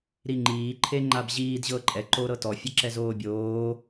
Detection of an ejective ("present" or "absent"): present